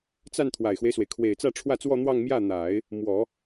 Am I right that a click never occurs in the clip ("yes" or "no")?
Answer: yes